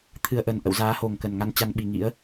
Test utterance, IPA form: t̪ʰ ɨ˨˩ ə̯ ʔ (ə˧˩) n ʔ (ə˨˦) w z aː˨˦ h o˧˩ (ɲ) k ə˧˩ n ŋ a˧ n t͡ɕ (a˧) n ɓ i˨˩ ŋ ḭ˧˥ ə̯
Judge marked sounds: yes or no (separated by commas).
yes, no, no, yes